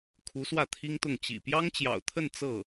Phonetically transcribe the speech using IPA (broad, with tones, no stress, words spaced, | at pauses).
kʰu˧˥swä˥˩t̪ʰi˥ŋt̪ʊ˥˩ŋ t͡ɕḭ˨˩ pjɑ˥ŋt͡ɕjɑ̰˨˩ʊ̯t̪ʰə˥˧n t͡sɤ˥˩